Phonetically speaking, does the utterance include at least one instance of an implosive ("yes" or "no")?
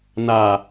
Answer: no